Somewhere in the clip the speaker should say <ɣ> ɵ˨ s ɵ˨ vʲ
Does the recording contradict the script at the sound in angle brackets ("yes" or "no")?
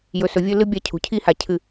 yes